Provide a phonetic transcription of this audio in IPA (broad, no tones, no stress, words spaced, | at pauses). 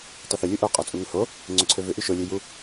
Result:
tˤyθʏ lʲuʔo qʼɔt͡sʼuŋʏho | ŋ͡ǀøǀʰøvʏ ʔyʃo lʲøju